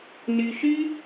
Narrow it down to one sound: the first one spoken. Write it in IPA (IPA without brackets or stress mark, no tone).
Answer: n